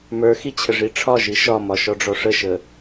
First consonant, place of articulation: labial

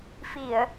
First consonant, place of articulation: labial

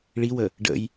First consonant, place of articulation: retroflex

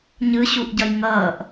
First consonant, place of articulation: palatal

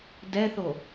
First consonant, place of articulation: alveolar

